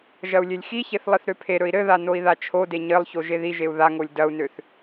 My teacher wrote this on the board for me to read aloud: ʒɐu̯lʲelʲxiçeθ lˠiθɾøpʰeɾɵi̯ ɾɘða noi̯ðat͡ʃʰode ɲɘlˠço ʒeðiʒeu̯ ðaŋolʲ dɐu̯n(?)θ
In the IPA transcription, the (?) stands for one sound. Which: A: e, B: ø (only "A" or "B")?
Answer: B